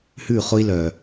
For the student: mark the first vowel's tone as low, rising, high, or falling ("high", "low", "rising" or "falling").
falling